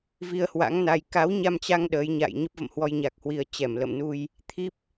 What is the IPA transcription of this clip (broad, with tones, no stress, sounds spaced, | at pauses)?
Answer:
v i˧ ə̯ h w a̰˧˥ ŋ n a˧ j k a˨˦ w ɲ a˧ m t͡ɕ a˧ ŋ ɗ əː˨˦ j ɲ a̰ː˧˨ j ɲ ə˦˥ p̚ v ə̰˧˨ m h w ɔ˧ j ɲ a˨˩ k̚ h w i˨˩ ə̯ t͡ɕ ɛ˧˩ m l ə̰˧˨ m n u˧ j | t̪ʰ i˦˥ p̚